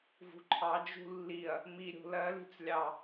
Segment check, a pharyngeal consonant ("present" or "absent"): absent